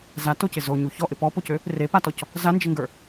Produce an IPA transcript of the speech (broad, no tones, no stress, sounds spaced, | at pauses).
z a t o c ɪ z o ɲ u ç ɔ ʔ ɪ p ɔ p o c ø | r e p a t ɔ c | z a n d͡ʒ ɪ ŋ ɡ ə˞